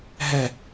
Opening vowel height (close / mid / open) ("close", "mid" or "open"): mid